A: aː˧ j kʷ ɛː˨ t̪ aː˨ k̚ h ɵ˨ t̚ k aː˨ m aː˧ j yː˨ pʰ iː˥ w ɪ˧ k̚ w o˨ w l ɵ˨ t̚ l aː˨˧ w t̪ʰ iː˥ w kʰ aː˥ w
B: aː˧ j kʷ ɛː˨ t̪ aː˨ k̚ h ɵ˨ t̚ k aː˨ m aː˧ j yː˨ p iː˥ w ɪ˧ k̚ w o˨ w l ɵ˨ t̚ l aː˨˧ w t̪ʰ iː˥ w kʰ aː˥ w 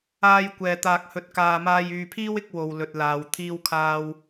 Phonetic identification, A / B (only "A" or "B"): A